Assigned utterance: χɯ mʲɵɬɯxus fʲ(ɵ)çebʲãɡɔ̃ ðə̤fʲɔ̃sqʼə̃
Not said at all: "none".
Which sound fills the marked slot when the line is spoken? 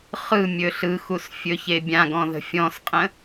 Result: ɵ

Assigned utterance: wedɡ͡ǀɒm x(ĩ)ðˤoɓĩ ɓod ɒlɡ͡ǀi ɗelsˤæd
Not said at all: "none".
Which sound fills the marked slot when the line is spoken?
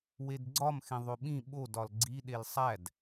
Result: ẽ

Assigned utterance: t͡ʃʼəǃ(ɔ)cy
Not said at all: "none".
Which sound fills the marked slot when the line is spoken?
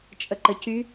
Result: ə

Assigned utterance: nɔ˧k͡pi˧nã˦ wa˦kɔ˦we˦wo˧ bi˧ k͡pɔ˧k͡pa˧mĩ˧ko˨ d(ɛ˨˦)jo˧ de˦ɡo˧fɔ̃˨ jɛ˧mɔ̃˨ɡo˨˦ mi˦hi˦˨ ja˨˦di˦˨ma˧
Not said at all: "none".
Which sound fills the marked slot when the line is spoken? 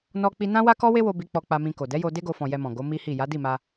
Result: ɛ˨˦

